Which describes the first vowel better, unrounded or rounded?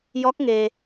rounded